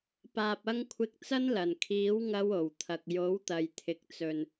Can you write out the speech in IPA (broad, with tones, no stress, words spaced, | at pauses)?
paː˨p̚ɐ˧ŋkʷʰɪ˨˥k̚ t͡sɐ˥nlɐ˨˩n kʰiː˨˥wŋɐ˧w o˨˩wt̪ʰɐ˨k̚ jo˨˥wt̪ɐ˨jt̪ʰɪ˨k̚t͡sɵ˨n